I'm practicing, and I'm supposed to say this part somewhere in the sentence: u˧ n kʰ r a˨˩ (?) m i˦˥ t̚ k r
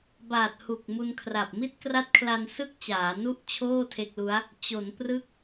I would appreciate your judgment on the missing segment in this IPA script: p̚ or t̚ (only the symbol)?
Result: p̚